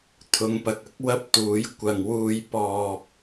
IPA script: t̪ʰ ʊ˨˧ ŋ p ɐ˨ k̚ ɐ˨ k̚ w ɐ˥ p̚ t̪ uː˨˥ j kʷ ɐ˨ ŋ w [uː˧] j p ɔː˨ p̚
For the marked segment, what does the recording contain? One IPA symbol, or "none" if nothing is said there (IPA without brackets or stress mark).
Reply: uː˧